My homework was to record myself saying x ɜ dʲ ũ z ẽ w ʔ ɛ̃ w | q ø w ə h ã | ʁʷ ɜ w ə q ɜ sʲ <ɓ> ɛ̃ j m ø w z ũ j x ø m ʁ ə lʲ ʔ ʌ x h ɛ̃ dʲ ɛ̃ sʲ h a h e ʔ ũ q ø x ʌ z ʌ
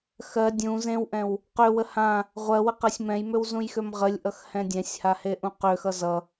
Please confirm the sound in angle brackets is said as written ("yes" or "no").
no